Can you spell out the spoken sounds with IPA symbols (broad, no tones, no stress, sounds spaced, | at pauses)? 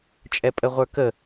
t͡ʃʼ ɛ pʼ ə ʁʷ ə˞ k ə